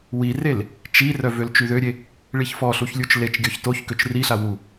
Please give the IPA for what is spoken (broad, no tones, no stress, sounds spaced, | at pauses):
w i r e l | t͡ʃ i r œ v ø l t͡ʃ y ð ø ɾʲ e | ɭ i ç f ɔ ɬ u ç lʲ u t͡ʃ l e t͡ʃ ɡʲ ɔ ç t o ç k ø t͡ʃ r i ɬ a w u